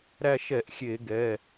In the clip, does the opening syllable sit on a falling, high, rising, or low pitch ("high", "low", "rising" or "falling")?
falling